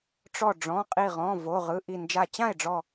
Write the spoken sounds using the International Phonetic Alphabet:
ʈ͡ʂ ɔ˧˩ ɖ͡ʐ ɔ̃˩˧˩ qʼ i˧˩ ʁ ɔ̃˩˧˩ v o˩˧˩ ʁ ɯ˩˧˩ ʔ i˧˩ n d͡ʒ a˧˩ t͡ɕ ã˥˩ e̯ ɖ͡ʐ ɔ˧˩

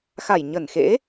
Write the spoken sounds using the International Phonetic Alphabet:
x a˧˩ j ɲ ə˧˩ n x ḛ˧˥

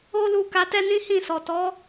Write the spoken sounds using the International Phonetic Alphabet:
o˦ l u˧ k a˧ t ɛ˦ n ĩ˦ h ĩ˦˨ s ɔ˨ t ɔ˨˦

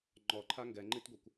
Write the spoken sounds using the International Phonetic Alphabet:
ŋ͡ǃ ɔ ǃʰ a ŋ ɡ ɛ ŋ͡ǃ i t ɡʷ ɤ kʷ

